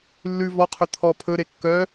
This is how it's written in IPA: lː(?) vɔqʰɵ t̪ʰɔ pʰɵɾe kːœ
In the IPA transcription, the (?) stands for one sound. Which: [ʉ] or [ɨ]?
ʉ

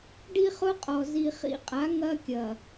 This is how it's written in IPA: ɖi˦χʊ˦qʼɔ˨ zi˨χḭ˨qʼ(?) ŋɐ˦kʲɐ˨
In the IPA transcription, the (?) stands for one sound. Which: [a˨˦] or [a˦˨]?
a˨˦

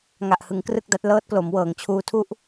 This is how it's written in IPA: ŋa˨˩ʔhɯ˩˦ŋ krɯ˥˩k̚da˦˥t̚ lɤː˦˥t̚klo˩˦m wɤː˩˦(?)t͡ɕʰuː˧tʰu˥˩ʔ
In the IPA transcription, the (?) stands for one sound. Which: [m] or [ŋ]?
ŋ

